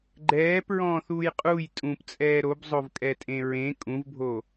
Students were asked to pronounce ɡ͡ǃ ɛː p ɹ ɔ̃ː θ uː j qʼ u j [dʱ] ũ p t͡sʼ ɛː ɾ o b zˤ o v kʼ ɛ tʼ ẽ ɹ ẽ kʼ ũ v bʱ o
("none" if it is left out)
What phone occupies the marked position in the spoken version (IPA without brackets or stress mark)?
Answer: tʼ